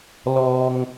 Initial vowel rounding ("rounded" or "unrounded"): rounded